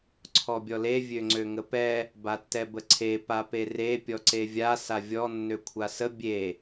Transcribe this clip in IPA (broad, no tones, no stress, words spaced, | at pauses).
ǀʰɔbʲɔle vʲøŋ͡ǀøŋəpɛ | batːɛbəǀʰe papere pʲɔǀevʲa savʲɔ nːøkʷʰasə bʲe